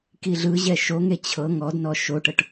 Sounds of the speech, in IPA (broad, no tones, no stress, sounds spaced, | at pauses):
k i ɮ ɯ ʑ ɛ ʃ o ŋ e t͡ɕʰ ɤ ŋ ɔ d n ɔ ʃ o ʈ ɤ ʈ